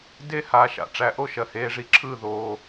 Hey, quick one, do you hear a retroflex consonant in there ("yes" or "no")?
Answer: yes